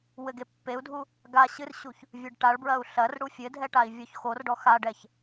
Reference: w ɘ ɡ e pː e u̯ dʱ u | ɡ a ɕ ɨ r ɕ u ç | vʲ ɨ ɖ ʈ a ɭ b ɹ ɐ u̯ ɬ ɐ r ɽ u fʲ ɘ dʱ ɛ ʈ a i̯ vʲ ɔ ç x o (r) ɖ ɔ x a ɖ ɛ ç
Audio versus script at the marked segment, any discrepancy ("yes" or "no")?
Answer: no